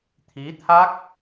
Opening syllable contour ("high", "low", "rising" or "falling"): rising